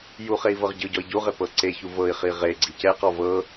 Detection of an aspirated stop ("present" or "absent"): absent